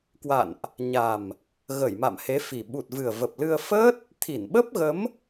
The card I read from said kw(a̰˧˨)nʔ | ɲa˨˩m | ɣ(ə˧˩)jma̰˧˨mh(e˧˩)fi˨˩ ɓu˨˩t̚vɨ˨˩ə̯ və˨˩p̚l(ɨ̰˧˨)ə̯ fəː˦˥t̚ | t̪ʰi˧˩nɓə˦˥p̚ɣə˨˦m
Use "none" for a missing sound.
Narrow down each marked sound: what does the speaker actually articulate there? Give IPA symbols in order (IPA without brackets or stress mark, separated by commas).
a̰˧˨, ə˧˩, e˨˦, ɨ˧